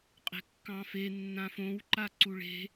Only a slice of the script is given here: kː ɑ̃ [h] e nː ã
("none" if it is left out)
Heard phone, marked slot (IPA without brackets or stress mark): f